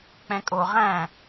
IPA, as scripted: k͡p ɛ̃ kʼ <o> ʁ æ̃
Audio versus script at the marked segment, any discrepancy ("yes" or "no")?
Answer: no